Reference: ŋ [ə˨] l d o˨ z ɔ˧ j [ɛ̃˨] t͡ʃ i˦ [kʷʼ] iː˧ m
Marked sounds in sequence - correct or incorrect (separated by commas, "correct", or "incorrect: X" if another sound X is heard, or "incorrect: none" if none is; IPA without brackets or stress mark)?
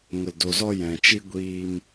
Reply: correct, correct, incorrect: ɡʷ